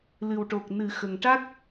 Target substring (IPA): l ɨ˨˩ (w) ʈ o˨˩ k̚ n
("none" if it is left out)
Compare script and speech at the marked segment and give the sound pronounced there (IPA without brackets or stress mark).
w